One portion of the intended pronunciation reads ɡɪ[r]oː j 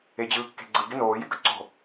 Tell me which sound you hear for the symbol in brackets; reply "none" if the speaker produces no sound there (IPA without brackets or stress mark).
n